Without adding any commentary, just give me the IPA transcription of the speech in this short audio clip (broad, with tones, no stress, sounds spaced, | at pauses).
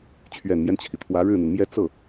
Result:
t͡ɕʰ ɥ ɛ˨˩ n m j ɛ˦ n t͡ɕʰ i˩ t̪ʰ w ä˧˥ ɻ ɻ̩˥˩ n̪ i˩ n m j ɛ˥ t͡s ɤ˥˩